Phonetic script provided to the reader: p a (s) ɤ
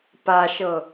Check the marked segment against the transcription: incorrect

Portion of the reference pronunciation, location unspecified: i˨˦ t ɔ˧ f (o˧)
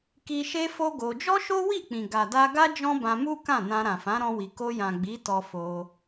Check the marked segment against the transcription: correct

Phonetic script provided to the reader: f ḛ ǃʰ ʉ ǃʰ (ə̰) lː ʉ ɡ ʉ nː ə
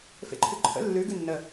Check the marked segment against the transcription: correct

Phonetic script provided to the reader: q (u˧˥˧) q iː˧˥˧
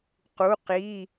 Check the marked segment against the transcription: correct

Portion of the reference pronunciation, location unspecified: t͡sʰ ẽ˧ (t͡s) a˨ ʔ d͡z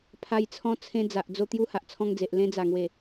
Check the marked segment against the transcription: incorrect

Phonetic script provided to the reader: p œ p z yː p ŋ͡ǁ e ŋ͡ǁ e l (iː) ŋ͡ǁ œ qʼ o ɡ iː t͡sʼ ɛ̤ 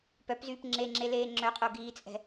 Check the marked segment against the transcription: incorrect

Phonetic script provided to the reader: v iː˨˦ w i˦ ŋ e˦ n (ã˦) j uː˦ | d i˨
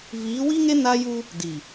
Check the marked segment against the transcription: incorrect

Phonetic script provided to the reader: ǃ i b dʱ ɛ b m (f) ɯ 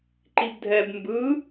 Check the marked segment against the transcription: incorrect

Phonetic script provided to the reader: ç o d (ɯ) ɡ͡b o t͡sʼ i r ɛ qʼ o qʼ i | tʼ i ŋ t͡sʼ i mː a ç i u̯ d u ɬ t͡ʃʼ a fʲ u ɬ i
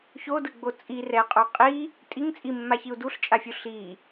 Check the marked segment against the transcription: correct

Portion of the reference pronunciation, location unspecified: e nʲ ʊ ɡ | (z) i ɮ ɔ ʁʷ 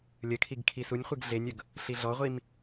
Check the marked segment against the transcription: incorrect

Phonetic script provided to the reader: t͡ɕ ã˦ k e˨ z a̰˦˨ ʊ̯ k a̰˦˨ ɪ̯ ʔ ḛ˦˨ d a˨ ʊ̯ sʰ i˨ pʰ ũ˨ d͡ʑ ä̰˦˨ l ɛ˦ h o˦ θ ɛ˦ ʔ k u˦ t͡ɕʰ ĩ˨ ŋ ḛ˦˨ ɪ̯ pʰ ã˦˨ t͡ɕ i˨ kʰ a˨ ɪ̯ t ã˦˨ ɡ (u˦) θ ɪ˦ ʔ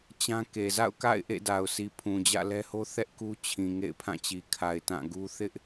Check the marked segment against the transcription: correct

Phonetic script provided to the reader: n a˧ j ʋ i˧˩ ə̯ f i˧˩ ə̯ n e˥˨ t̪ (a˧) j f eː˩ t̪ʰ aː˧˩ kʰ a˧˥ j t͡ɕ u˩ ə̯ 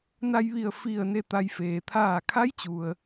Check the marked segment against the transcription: correct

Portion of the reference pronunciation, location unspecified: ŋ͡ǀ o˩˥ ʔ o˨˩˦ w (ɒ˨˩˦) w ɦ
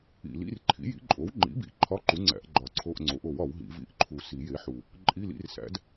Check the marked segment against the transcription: correct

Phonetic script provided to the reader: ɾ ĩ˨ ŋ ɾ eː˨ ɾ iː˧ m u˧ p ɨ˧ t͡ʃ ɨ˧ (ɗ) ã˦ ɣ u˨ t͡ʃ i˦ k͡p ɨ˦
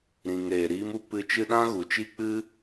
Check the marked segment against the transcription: correct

